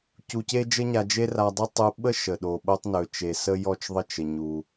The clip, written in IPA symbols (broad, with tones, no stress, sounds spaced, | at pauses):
c u˧ c e˥ d͡ʒ ə˥ ɲ a˧ d͡ʒ e˥ r a˧ dˤ e˥ tˤ u˧ ɓ ə˥ ʃ ə˩ ɗ o˩ ɓ o˧ tˤ n ɵ˩ t͡ʃ e˩ s ə˧ j ɔ˧ t͡ʃ ðˤ ə˧ t͡ʃ ə˩ ɲ u˩